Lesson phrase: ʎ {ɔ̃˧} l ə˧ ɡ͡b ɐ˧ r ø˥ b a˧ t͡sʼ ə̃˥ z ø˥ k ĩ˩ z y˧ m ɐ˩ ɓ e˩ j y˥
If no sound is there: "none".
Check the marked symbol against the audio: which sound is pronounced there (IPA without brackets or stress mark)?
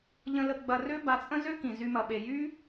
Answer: ə̃˧